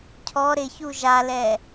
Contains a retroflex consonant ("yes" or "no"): no